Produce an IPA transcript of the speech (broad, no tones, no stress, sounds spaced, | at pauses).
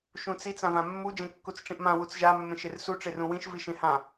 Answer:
ʃ ũ t͡s i t͡s ã v ã mː u d͡ʒ ẽ kː u t͡s ʈ͡ʂ ĩ ʔ m ã w u t͡s ʒ a mː ẽ ʃ e r s u ʈ͡ʂ e r ũ w ĩ ʃ v i ʃ ẽ h ã